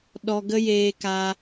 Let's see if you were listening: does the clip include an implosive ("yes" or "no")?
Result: yes